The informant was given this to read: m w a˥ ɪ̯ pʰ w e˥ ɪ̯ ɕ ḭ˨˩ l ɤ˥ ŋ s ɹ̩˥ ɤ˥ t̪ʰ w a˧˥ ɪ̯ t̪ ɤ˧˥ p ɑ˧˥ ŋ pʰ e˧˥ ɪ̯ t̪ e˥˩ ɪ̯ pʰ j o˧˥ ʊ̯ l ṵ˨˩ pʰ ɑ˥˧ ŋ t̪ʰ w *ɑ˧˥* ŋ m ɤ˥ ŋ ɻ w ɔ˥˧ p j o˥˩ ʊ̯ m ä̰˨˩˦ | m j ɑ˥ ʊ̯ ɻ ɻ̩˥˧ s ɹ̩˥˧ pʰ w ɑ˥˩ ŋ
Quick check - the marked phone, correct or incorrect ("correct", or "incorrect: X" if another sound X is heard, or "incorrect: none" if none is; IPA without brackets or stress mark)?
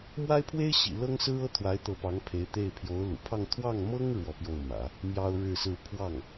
incorrect: ɑ˥˩